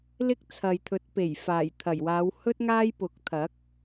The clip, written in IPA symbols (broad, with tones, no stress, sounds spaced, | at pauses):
l ɪ˥ k̚ t͡sʰ ɐ˨ j t̪ʰ ɵ˨˥ t̚ p e˨˩ j f aː˨˩ j t̪ʰ ɐ˨˩ j w aː˨˧ w h ɵ˥ t̚ ŋ aː˥ j p ʊ˨˥ k̚ t̪ʰ ɐ˨˥ k̚